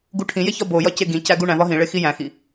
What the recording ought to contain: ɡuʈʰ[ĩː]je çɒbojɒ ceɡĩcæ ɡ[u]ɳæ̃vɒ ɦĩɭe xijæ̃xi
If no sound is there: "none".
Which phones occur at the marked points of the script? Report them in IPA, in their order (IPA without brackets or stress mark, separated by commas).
ĩ, u